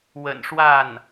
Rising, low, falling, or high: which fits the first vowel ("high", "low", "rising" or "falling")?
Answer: low